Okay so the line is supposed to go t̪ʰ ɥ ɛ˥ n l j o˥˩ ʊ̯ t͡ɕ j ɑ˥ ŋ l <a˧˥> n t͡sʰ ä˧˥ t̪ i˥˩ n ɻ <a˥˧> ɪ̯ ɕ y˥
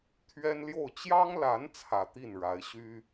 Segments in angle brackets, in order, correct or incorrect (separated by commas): correct, incorrect